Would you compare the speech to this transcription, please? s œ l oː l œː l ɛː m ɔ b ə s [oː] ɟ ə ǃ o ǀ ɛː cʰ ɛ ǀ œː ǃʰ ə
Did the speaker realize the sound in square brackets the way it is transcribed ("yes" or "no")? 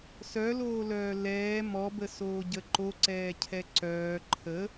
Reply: yes